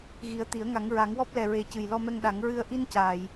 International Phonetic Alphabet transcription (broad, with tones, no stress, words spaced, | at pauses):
ɣi˨˩˦ə̯ t̪i˨˩˦ə̯ŋa˨˩˦ŋɹa˨˩˦ŋ wɔ˦˥p̚lɛ˨˩ɹe˨˩ cɨ˨˩jlɔ˧mɛ˧ŋ ɗa˨˩˦ŋɹɨ˧ə̯ ʔi˧n caː˨˩˨j